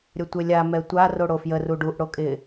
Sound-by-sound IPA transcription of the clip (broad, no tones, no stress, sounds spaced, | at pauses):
ɾʲ ə tʷ e lʲ a m ɛ tʷ a r o ɽ o f j ə r u ɖ u ʔ ɽ o kʼ ɪ